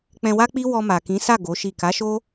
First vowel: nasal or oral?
nasal